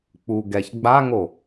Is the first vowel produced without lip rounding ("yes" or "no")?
no